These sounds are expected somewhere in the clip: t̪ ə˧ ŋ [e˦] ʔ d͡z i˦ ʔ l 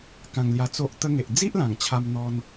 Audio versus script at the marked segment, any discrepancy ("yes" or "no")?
yes